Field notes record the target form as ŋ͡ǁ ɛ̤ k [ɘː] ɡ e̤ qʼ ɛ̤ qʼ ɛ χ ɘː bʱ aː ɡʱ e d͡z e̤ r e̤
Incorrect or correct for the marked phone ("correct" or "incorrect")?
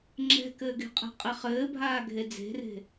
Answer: correct